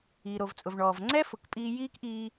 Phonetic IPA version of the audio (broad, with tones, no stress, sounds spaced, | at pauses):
iː˩ ɾ o˩ v t͡sʼ ʊ˩ v ɳ ɔː˩ v ŋ͡ǀ ɛ˥ f ʊ˩ k pʼ iː˧ j iː˥ k ʔ iː˧